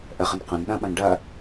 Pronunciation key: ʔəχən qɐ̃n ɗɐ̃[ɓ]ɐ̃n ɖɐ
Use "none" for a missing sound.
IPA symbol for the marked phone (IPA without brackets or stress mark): ɓ